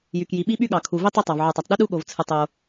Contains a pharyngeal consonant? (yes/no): yes